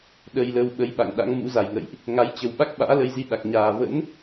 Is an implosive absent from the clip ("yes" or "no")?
no